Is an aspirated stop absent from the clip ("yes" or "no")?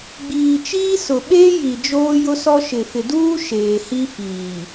yes